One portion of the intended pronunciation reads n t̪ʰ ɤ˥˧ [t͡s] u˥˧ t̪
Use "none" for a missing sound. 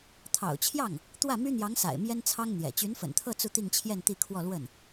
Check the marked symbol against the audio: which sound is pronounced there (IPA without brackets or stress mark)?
t͡s